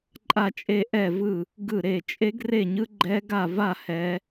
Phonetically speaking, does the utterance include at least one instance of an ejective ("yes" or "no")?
yes